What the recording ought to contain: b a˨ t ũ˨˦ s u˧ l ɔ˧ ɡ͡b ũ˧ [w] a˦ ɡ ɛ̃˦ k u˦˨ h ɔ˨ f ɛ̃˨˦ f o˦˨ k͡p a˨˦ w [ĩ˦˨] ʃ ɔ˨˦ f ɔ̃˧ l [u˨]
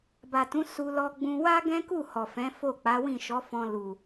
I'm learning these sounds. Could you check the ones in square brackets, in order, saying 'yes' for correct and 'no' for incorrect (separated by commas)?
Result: yes, yes, yes